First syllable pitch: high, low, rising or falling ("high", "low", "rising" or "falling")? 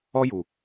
high